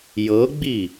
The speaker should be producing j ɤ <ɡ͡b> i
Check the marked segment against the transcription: correct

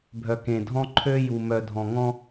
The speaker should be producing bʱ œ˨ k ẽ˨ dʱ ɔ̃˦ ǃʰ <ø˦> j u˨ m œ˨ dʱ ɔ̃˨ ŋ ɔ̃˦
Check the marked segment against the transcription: correct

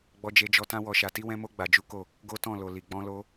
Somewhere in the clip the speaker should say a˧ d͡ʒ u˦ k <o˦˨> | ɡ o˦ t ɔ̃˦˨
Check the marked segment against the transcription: correct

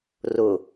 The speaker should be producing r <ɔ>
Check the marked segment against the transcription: incorrect: ʊ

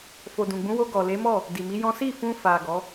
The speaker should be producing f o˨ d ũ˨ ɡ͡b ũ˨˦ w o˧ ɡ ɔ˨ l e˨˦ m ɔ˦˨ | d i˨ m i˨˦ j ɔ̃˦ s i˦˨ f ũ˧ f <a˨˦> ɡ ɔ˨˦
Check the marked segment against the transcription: incorrect: a˨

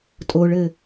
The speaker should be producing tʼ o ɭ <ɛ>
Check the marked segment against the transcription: incorrect: ɘ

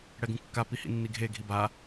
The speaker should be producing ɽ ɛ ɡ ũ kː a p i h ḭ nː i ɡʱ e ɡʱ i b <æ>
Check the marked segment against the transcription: incorrect: a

